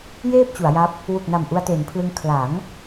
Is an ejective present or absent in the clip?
absent